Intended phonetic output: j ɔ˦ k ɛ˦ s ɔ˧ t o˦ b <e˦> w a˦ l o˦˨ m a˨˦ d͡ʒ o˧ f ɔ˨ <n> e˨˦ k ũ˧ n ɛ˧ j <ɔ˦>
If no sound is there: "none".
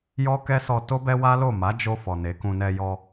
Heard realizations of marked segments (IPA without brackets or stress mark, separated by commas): ɛ˦, n, ɔ˧